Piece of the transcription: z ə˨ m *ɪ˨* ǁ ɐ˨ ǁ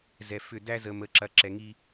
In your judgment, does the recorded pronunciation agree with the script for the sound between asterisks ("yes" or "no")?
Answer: no